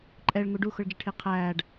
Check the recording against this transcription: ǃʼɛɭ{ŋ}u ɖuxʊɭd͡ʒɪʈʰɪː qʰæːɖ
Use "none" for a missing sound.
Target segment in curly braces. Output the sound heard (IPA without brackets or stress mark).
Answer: ŋ